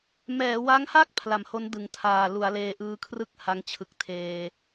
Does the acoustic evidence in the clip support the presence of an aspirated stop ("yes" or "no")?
yes